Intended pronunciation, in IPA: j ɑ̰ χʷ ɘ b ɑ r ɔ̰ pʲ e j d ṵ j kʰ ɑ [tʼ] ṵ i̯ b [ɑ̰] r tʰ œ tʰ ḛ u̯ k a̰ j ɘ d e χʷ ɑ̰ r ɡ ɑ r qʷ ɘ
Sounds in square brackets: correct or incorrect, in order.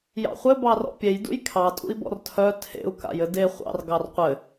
correct, incorrect: ɔ̰

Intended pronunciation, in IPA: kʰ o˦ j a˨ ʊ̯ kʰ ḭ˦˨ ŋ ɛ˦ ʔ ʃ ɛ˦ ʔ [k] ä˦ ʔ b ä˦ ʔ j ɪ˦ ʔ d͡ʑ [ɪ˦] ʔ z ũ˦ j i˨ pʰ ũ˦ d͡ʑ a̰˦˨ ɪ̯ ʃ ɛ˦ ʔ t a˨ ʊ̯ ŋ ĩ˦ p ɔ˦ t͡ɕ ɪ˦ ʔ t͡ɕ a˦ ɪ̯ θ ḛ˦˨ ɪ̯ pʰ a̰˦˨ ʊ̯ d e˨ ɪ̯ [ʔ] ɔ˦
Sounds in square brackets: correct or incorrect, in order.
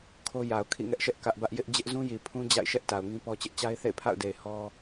correct, correct, incorrect: h

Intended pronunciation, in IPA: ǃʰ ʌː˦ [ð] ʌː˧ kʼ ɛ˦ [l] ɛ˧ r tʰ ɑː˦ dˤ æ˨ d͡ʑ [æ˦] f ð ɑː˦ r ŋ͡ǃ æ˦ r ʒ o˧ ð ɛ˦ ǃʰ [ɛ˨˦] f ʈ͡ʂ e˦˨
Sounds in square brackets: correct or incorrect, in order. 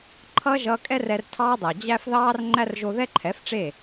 incorrect: ʒ, incorrect: r, correct, correct

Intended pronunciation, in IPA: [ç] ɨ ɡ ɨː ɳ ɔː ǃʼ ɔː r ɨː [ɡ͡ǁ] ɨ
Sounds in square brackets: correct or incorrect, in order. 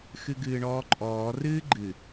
incorrect: x, incorrect: ɡ͡ǃ

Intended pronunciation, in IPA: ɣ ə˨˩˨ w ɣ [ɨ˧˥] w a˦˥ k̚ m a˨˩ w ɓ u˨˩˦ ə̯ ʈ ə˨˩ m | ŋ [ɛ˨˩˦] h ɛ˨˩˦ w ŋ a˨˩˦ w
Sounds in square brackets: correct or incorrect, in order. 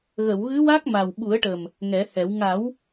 correct, correct

